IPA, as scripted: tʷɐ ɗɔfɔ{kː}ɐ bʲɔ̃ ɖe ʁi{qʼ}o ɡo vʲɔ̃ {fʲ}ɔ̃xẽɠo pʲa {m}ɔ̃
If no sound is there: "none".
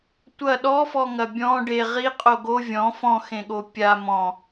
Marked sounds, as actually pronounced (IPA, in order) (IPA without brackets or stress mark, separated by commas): ŋ, qʼ, f, m